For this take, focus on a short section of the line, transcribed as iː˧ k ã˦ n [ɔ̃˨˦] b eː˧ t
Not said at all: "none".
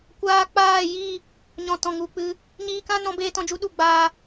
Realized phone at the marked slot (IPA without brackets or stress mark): ɔ̃˨˦